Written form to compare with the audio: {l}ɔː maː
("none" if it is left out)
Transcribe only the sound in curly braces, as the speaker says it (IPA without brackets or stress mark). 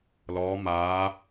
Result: l